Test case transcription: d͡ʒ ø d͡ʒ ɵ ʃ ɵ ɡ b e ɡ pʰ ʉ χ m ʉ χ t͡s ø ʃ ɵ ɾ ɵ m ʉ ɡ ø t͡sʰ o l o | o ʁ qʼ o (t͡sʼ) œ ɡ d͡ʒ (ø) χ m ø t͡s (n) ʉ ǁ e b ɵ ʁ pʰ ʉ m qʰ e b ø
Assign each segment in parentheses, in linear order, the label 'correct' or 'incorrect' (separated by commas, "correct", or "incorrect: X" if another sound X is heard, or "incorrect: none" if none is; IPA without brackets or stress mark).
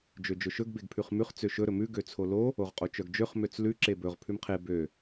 incorrect: t͡ʃ, correct, incorrect: l